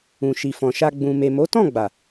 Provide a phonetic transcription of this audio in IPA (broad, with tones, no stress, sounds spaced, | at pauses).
ũ˨ ʃ i˨ f ɔ̃˨ ʃ a˧ ɡ͡b ũ˨ m e˨ m o˨˦ t ɔ̃˦˨ ɡ͡b a˨